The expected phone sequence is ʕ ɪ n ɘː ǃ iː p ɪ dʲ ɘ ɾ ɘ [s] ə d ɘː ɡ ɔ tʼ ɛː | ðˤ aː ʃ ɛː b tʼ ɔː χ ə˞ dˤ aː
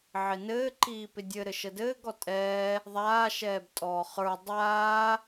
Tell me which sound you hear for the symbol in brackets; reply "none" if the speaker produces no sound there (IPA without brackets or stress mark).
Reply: ʃ